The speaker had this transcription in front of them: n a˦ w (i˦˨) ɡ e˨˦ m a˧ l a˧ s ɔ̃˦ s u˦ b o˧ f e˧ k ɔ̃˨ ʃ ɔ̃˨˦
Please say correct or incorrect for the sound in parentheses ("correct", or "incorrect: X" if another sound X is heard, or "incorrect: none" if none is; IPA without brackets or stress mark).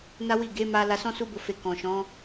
correct